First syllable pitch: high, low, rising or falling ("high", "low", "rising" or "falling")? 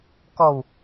low